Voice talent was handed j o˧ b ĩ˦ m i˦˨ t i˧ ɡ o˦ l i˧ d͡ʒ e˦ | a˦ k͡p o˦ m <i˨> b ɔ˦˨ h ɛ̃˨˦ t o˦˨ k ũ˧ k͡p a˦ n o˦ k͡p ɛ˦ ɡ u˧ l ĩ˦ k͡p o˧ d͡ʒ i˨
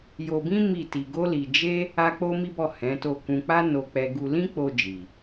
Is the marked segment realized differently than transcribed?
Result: yes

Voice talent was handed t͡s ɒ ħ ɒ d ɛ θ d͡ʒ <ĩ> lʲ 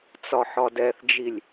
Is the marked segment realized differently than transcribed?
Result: yes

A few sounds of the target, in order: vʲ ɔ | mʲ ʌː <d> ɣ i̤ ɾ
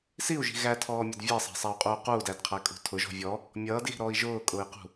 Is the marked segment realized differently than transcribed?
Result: no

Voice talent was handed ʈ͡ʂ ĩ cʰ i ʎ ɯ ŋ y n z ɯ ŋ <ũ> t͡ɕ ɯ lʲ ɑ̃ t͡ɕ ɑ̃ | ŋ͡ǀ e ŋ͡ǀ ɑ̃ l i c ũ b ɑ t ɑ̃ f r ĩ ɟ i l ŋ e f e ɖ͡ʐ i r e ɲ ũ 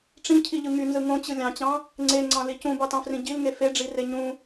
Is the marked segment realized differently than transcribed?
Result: yes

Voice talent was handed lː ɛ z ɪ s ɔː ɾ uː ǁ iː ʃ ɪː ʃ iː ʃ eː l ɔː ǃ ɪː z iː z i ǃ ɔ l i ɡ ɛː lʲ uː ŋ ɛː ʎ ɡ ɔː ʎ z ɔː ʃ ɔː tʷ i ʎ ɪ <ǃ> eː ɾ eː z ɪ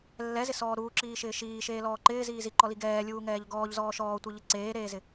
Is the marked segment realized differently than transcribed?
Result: yes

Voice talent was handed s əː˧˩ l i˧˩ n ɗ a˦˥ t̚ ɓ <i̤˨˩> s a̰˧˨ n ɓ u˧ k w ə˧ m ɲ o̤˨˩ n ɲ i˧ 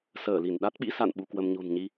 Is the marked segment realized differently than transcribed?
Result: yes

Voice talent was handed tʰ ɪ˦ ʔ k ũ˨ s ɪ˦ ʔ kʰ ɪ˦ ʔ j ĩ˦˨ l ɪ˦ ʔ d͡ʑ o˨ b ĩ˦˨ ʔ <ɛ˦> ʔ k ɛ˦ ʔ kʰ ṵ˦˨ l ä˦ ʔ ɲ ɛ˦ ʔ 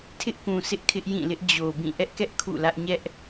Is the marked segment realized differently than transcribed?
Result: no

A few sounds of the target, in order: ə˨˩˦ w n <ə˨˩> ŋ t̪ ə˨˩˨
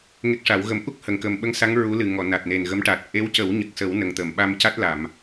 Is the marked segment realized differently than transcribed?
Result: no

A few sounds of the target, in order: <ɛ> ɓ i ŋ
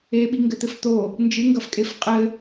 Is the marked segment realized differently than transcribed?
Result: yes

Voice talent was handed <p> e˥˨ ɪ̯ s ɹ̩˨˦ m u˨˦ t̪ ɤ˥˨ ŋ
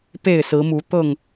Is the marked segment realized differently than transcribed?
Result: no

